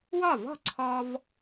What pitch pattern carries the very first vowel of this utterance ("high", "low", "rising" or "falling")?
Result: falling